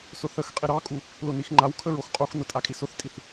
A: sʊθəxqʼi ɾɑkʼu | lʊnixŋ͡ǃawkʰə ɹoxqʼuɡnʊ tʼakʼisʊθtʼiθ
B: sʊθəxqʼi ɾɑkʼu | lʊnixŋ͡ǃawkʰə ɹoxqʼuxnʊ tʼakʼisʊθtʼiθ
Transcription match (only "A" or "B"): B